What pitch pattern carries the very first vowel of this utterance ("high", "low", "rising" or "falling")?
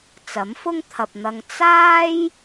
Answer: rising